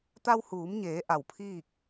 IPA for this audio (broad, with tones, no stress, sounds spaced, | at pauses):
t̪ a˧ w h uː˩˧ m ɲ eː˩˧ ʔ a˧˩ w pʰ iː˥˨ k̚